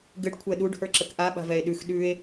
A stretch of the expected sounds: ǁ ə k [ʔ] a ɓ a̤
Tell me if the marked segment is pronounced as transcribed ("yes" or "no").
yes